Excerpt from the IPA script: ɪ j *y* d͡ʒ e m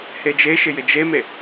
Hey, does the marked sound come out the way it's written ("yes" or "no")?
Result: no